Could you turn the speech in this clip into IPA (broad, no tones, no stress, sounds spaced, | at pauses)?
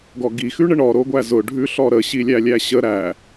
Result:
ɡ ɔ ɡ i x ʉ ɳ ə ɳ ɔ ɾ o ɡʷ æ z ʊ ɖʱ ʉ ɬ ɔ ɾ ə ɕ i lʲ æ lʲ æ ɕ ə ɾ æ